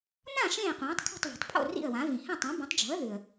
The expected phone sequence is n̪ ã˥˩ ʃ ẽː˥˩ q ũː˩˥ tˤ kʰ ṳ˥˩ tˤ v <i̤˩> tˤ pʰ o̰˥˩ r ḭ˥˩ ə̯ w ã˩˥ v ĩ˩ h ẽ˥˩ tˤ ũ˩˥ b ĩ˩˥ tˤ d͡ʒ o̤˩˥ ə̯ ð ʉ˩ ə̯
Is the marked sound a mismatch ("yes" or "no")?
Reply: no